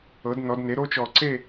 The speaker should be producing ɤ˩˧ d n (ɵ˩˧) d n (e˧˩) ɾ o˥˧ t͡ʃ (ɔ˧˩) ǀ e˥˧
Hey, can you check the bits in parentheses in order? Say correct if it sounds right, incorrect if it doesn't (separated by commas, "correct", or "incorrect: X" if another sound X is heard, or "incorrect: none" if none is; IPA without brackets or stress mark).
incorrect: ɔ˩˧, incorrect: e˩˧, correct